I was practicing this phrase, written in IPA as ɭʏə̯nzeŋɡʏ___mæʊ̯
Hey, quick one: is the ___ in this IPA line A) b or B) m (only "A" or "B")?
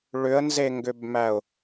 A